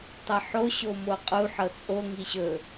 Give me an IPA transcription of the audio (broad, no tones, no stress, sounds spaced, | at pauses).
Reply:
tˤ ʌ ħ o ɕ o m o qʼ u ħ ɤ t͡sʼ o ŋ i ɕ ɵ